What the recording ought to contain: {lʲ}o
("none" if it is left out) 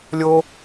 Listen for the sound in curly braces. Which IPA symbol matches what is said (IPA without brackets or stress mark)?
lʲ